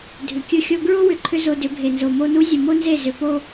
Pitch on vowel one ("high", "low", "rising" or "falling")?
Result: low